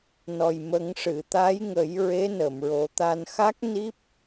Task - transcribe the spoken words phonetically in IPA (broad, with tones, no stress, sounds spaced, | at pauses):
n ɔ˨˩ j m ə˨˩˦ ŋ ʂ ɨ˨˩˨ t̪ a˧˥ j ŋ ə˨˩˦ j ɹ e˧˥ n ə˨˩˨ m ɹ o˨˩˦ t̪ a˧ n x a˦˥ k̚ n i˦˥ p̚